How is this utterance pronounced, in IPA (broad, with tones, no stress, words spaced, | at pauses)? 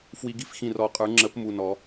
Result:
fwi˨˩˦ɡi˨˩˦f xĩ˧˩rɔ˨˩˦qʼə˞˨˩˦ ŋ͡ǁə˨˩˦p mu˧˩nɔ˨˩˦